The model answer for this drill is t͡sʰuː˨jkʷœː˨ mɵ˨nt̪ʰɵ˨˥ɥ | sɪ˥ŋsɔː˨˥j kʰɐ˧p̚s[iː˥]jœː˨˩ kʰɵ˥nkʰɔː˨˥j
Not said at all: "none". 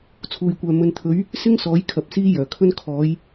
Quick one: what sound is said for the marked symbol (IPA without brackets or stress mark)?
iː˥